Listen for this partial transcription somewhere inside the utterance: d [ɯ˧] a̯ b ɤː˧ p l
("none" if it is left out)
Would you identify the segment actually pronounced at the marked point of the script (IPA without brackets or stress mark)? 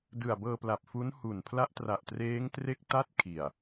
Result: ɯ˨˩